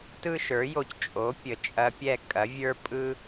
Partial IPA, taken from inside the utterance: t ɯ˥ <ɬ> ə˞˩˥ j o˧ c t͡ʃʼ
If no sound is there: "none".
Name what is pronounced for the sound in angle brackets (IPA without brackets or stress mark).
ʃ